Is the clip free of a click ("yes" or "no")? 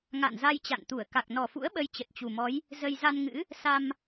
yes